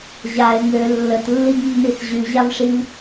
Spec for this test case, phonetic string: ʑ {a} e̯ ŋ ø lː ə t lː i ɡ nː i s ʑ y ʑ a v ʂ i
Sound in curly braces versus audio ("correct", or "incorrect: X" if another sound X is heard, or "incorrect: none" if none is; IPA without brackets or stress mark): correct